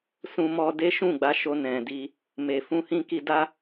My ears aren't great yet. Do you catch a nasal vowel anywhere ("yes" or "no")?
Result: yes